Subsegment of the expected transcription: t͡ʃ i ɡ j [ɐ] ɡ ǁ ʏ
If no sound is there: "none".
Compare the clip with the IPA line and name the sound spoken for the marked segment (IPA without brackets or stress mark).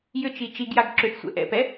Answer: a